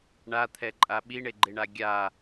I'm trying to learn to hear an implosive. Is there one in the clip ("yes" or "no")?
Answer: yes